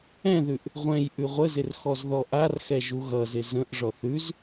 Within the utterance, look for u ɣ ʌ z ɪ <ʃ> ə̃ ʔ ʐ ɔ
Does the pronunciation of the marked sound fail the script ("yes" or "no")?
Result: yes